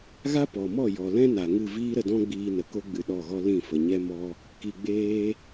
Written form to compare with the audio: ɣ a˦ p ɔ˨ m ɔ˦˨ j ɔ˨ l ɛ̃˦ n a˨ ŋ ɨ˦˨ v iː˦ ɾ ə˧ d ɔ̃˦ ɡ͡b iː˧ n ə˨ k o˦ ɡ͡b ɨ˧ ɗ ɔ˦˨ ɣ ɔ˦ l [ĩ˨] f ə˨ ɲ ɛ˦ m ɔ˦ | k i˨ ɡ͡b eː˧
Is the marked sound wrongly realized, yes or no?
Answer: yes